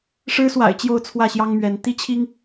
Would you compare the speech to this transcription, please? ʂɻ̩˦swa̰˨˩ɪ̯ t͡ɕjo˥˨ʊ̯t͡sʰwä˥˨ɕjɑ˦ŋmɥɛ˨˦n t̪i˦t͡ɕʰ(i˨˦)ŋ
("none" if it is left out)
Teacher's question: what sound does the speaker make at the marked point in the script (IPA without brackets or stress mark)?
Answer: i˦